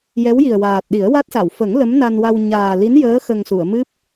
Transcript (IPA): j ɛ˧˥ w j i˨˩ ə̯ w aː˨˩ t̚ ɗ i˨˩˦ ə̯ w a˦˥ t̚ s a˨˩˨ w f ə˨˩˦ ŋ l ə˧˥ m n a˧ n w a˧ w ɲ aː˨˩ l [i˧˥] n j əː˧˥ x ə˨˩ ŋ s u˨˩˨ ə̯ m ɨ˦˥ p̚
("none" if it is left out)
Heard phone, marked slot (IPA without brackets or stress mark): i˧˥